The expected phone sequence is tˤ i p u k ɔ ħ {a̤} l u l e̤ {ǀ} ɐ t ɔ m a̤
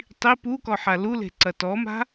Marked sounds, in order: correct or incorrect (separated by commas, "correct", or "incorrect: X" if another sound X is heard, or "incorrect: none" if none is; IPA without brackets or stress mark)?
incorrect: a, correct